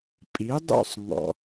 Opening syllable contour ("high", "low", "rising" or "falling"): rising